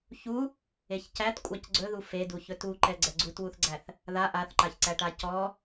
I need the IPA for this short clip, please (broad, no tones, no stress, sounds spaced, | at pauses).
ç u | e ç c æ t kʷʼ a c ɡ͡ǀ ɵ ð u f e d u ç ɵ t u ǃ ɛ ɡ͡ǀ ɛ ɡ͡ǀ u t w u θ ɡ͡ǀ æ θ | ð a ʔ a θ ǃ a ç ǀ æ ʈ a c ɔ